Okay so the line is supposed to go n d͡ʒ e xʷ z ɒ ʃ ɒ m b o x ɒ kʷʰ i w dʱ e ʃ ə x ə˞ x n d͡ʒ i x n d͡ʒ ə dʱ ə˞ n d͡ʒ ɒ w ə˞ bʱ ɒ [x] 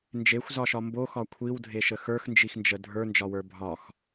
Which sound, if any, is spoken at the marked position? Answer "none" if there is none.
x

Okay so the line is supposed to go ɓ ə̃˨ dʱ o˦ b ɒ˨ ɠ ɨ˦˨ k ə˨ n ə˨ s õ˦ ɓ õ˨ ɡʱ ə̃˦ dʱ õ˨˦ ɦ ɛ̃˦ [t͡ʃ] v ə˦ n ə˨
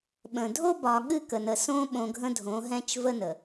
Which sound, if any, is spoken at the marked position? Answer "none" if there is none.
t͡ʃ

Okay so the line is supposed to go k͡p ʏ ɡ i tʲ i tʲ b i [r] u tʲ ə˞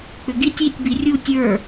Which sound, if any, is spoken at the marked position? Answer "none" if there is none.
rʲ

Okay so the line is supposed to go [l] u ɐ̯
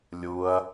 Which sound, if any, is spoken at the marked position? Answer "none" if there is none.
lʲ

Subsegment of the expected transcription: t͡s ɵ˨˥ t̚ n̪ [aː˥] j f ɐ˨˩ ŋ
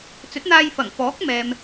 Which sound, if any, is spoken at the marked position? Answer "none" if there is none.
aː˧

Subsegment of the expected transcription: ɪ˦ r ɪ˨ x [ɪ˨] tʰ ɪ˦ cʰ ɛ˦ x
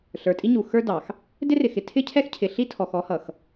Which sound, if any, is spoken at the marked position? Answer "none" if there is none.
ɪ˨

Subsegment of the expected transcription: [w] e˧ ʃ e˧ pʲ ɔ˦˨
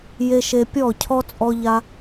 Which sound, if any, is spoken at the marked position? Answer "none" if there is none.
j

